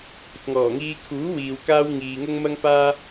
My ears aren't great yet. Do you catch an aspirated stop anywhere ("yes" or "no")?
yes